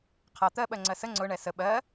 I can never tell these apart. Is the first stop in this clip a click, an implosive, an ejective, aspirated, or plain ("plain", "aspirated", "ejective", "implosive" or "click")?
aspirated